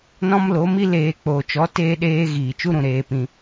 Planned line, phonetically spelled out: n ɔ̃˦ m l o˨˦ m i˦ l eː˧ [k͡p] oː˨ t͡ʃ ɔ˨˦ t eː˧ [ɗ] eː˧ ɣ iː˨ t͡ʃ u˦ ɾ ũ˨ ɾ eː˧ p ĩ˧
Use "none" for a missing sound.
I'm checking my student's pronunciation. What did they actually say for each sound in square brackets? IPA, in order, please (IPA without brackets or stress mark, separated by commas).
k͡p, ɗ